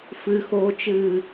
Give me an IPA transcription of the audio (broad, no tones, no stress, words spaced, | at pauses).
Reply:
fɨxoːt͡ʃɨː